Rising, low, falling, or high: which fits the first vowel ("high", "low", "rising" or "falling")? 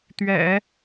low